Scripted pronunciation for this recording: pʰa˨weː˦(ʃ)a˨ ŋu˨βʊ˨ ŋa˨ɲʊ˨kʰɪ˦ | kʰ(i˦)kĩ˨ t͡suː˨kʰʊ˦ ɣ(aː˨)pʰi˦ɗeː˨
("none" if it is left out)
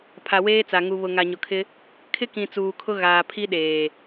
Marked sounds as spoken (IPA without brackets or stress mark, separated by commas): t͡s, ɪ˦, aː˨